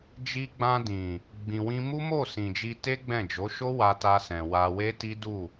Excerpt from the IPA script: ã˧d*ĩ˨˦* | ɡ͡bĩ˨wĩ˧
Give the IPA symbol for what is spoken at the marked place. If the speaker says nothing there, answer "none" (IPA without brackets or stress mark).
ĩ˨